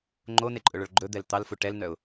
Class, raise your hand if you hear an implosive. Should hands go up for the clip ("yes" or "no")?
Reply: no